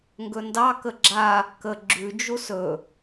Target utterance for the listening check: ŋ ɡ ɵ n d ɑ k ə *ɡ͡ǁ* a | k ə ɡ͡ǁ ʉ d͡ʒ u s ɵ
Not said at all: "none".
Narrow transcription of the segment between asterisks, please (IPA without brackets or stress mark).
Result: ɡ͡ǁ